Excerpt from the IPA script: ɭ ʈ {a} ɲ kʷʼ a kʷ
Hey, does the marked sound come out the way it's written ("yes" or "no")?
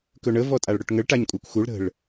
yes